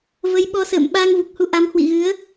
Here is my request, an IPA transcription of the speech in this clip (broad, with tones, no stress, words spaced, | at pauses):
və˨˦jɓɔ˨˦sə̰ː˧˨m ɓaː˧ŋvu˨˩k̚hu˧ ʔa˨˦mhwḭ˧˨ɣɨ˨˦ə̯